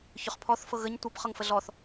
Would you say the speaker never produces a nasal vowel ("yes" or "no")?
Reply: yes